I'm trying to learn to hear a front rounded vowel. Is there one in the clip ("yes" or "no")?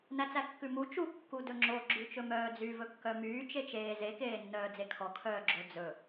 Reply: yes